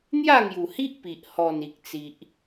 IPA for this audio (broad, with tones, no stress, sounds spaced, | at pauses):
n̪ j a˥˧ ŋ j u˨˩ h i˦ ʔ p i˨ ʔ h ɔ˨˩ n i˨ k̚ t͡s i˨ ʔ